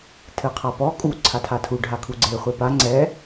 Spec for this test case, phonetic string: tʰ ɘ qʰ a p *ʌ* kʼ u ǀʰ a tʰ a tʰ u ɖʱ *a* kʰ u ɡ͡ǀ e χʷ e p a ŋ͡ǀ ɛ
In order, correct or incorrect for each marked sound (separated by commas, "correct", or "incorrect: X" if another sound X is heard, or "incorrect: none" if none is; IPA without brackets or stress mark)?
incorrect: ɔ, correct